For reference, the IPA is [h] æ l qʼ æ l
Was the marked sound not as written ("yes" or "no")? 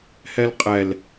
no